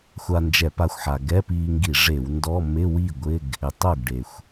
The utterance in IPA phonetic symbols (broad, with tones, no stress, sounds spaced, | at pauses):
xʷ a˧ n d͡ʒ ɛ˧˩˧ p a˧ xʷ ħ a˩ ɡ ɛ˧˥˧ p iː˧ ŋ ɡ i˧˩˧ ʐ e˧˩˧ w n d ɔ˧˥˧ m ɪ˧˥˧ w i˥˩ ɡʷ ɪ˧˥˧ ɡ | ɪ˩ tˤ o˥˩ ɡ ɖ e˩ xʷ